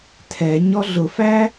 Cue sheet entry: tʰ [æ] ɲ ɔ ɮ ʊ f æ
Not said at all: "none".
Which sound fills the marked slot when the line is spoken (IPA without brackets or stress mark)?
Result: ɛ